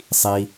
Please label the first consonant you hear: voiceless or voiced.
voiceless